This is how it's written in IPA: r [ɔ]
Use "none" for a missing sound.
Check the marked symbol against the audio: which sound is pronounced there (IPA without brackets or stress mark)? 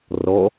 ɔ